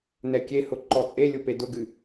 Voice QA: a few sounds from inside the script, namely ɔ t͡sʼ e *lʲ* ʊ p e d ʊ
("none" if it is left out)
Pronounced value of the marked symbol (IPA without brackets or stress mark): lʲ